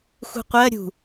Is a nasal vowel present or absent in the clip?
absent